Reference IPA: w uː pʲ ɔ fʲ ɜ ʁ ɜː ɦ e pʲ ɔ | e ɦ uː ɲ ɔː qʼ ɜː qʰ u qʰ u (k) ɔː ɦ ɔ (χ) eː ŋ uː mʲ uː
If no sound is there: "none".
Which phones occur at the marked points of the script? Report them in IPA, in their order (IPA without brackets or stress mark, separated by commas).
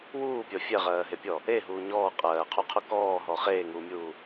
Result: k, χ